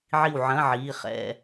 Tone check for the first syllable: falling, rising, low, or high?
falling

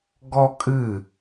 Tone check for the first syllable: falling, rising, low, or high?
high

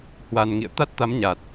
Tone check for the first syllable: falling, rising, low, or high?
low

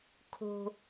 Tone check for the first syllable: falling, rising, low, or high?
low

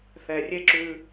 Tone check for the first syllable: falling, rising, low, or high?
low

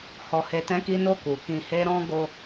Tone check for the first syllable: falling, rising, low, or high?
low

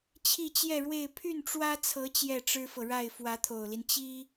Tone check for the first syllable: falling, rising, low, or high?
falling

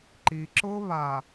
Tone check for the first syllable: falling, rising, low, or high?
low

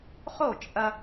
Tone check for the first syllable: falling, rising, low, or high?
falling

